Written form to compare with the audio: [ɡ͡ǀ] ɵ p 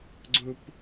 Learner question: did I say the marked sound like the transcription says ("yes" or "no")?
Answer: yes